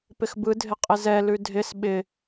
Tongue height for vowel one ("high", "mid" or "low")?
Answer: high